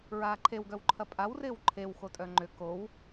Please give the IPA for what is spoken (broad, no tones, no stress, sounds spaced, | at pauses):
ɹ aː ǃʰ e w ɡ œ w ǃʰ ɐ pʼ a w r ɪː w ǃʰ e w x o tʼ œ ŋ͡ǃ ʏ k o w